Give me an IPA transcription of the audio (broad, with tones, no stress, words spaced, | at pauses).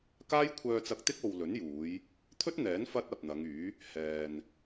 kaː˥jkʷʰœː˧t͡sɐ˧k̚t̪ɪ˥k̚ o˨w lɵ˨˥njuː˨˧j | t̪ʰɵ˥t̚n̪ɛː˨˥n fɐ˥t̚ɐ˨p̚n̪ɐ˨˧ŋyː˨˥ | hɛː˨n